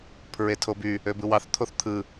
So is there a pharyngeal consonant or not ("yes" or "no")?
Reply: no